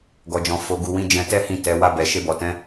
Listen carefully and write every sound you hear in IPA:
ɡ ɔ˨ d͡ʒ ɔ̃˨ f o˨ ɡ u˨ w ĩ˨˦ d͡ʒ ɛ̃˧ t ɛ˦ h ĩ˦˨ t ɛ˨˦ w a˧ b ɛ˨ ʃ e˧ b ɔ˨ t ɛ̃˨˦

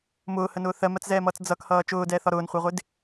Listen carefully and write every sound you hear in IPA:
m ʊː h ə n ʊː θ ɜ m ɜ t͡s z ɛː m ʌː t͡s d͡z ʌ k h ʌː t͡ʃ ʊː d ɛː θ ɒ ɾ ʊː n χʷ ɜ ʁʷ ɪ d

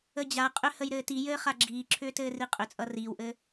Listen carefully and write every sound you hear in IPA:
ə d͡ʑ a qʼ ʏ h ə j ɾ ɘː t i j ɘː χ a ɡ͡ǁ iː ǁʰ ʏː t ɘː r i qʼ ʏ t͡sʼ ʌ r iː w ʔ ɘ

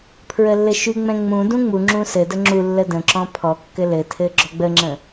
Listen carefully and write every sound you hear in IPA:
pʰ ɹ ə lː ɘ ʃ y ŋ͡m ɛ̃ ŋ͡m ũ d ũ ŋ͡m u ŋ͡ǁ ũ s ɘ d ə ŋ͡ǁ u lː ə d ə̃ ǁ ɔ̃ pʰ ɔ kː ɘ l ɘ tʰ ɘ ɡ͡ǁ ɔ ɡ͡b ə ŋ͡ǁ ə̃

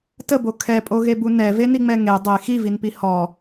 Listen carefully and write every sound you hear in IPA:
t ə b o kʰ ɛ pʼ o ɣ e b u n ɛ v e n i ŋ͡m ɛ ŋ e dˤ e x i v i n p i h ɔ

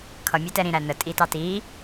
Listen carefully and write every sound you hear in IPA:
kʰ ʌ mʲ æ t ɛ ɾ ĩ ɾ æ n ə tʼ i t ɑ t i

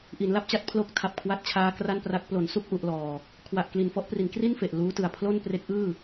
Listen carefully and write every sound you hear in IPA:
ʔ i˩˦ n l a˥˩ p̚ t͡ɕ a˦˥ t̚ pʰ l o˦˥ k̚ tʰ a˨˩ p̚ kʰ w a˦˥ t̚ t͡ɕʰ aː˦˥ k r a˥˩ n p r a˦˥ k̚ p l o˩˦ n s u˥˩ k̚ ʔ u˥˩ ʔ l ɔː˧ | kʰ w a˨˩ ʔ k l i˨˩ n f ɔ˥˩ ʔ p r i˩˦ n k r i˥˩ n f e˨˩ ʔ l uː˦˥ t ɯ˨˩ a̯ pʰ l o˥˩ n p r e˦˥ k̚ ʔ ɯː˥˩

